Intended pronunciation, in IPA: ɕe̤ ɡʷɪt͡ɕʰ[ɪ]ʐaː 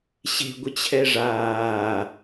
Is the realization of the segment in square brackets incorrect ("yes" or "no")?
yes